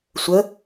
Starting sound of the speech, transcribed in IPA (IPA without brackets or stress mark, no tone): sʷ